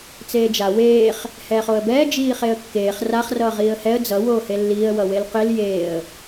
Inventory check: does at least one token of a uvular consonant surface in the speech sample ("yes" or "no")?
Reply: yes